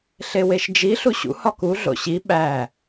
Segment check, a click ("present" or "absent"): absent